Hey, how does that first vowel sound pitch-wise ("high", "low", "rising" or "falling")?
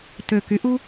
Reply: low